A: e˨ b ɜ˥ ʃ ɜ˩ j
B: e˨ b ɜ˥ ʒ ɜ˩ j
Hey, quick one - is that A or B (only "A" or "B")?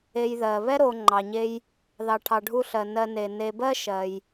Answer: A